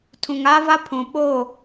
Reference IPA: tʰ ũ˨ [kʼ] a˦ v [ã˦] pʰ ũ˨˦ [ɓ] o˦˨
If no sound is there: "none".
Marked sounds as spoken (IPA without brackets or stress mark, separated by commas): ŋ, a˦, ɓ